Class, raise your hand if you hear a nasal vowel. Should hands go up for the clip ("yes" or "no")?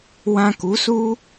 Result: yes